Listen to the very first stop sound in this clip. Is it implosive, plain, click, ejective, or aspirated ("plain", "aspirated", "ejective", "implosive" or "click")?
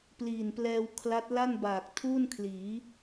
plain